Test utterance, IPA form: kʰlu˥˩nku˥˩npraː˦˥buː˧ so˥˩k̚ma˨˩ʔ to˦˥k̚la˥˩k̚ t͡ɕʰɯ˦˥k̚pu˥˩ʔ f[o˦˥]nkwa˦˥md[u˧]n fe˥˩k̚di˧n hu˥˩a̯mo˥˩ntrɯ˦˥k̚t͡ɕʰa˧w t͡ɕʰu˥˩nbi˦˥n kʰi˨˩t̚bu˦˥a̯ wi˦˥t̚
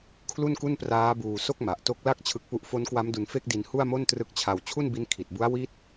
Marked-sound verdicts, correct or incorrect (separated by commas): correct, correct